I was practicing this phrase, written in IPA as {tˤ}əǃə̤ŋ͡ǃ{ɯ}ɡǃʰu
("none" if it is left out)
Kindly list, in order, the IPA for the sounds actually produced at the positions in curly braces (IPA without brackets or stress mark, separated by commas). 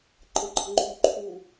ǃ, u